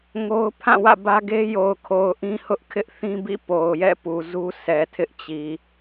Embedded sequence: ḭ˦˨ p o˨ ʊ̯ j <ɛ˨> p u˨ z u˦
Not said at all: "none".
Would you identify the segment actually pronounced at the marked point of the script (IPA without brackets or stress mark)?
ɛ̰˦˨